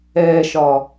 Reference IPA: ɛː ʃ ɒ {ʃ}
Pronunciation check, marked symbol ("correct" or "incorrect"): incorrect